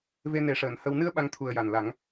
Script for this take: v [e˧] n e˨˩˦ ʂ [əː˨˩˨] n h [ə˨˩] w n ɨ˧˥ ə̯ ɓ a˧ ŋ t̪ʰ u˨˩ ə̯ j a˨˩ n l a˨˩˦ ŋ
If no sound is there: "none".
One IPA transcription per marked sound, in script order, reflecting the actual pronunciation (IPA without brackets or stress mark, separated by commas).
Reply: e˧, əː˨˩˨, ə˧